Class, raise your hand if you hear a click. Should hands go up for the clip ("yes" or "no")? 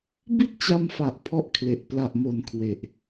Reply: no